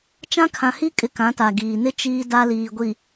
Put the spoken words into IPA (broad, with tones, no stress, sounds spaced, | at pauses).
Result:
t͡ʃ ã˦ kʰ ã˨ h i˦ kʼ ɪ˨ k ã˨˦ t a˨ ɡ iː˨ n ɪ˦ t͡ʃ iː˦ d a˦ l iː˨ ɡʷ i˨